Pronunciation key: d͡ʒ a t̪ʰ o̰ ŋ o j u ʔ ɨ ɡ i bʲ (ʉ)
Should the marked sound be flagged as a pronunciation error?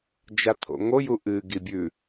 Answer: no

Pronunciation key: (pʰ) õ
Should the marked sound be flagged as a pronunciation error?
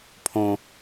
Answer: no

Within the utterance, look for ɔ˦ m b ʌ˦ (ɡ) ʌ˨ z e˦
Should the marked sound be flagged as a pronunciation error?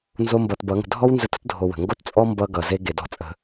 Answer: no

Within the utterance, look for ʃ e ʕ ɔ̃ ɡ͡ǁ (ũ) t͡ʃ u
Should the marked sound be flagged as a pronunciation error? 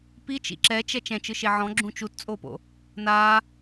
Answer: no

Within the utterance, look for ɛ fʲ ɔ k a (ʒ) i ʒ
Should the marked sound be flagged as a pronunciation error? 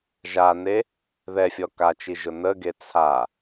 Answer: yes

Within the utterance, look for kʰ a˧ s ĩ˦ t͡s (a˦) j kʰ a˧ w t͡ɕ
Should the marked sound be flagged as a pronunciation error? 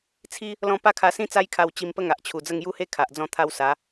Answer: no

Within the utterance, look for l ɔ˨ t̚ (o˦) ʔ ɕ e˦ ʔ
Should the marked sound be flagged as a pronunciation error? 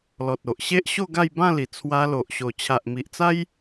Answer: yes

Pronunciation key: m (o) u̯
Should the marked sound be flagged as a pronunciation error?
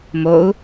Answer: no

